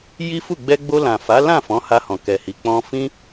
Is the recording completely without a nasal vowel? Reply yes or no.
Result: no